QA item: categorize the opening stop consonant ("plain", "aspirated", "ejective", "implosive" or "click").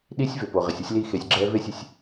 implosive